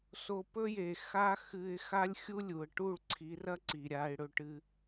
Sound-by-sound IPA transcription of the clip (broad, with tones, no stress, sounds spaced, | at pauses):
s o˧ p ɵ˦ j e˨ x a˦ x ɨ˧ ɪ̯ x a˦ lʲ xʲ u˦ lʲ u˨ ə̯ ʈ u˦˨ ɭ ǀʰ i˨˦ r ɐ˦ ǀ i˨ ɾʲ a˧ ɪ̯ ɽ ɵ˧ ʈ ɨ˧